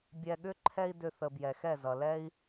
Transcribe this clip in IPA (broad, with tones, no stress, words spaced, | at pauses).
bʲɛ˧ɠʏ˦ ǃʰɛ˦i̯dʏ˧θə˨ bjɛ˨xɛ˦˨zʌ˨lɛ˦i̯